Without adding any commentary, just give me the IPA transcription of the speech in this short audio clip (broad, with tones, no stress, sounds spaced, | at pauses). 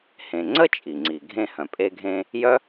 h ẽ˩ ŋ͡ǀ ə˥ t͡ʃʼ i˩ ŋ͡ǀ i˩ ɡʱ ẽ˧ h œ̃˩ pʼ e˧ ɡʱ ẽ˧ | j œ˥